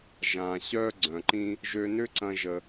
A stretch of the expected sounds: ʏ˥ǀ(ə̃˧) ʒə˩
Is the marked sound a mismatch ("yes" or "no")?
yes